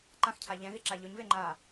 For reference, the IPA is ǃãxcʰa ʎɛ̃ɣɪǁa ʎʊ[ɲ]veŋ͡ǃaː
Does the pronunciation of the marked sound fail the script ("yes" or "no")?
no